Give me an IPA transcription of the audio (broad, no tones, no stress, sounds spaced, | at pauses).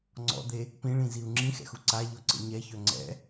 ŋ͡ǀ ɔ̰ d̪ e | p ĩ ɭ ĩ z i u̯ ŋ͡ǁ ĩ x ɛ̰ x u ǀ a ʎ ɔ ǀ ə̰ ɲ ɛ ç œ ŋ͡ǀ ɛ̰